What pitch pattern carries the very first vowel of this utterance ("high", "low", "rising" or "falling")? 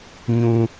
high